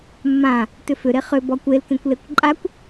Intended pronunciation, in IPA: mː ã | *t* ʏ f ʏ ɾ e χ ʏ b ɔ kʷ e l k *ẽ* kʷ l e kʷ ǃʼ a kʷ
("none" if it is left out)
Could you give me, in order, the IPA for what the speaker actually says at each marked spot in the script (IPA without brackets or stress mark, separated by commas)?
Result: t, ẽ